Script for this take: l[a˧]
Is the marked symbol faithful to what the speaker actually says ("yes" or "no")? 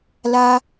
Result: yes